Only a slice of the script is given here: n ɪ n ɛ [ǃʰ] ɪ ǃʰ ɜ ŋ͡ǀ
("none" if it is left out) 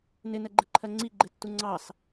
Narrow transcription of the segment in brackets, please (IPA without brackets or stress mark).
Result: ɡ͡ǃ